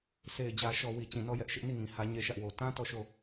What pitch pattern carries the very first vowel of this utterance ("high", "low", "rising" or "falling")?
low